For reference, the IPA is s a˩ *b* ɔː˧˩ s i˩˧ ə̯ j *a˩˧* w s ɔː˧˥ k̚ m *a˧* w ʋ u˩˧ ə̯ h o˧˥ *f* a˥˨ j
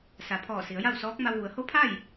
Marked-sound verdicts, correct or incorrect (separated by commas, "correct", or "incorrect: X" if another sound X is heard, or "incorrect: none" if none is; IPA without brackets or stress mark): incorrect: pʰ, incorrect: a˥˨, correct, incorrect: pʰ